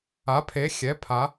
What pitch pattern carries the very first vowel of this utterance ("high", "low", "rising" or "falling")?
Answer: rising